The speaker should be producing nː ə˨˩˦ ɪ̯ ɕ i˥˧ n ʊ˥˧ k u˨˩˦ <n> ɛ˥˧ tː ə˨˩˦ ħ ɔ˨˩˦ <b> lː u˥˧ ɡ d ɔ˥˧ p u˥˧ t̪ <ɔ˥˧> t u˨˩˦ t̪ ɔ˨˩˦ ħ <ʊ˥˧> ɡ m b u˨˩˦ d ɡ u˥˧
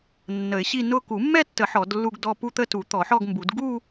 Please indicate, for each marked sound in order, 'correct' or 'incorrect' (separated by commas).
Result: incorrect, incorrect, incorrect, incorrect